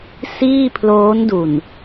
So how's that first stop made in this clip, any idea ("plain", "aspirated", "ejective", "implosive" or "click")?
aspirated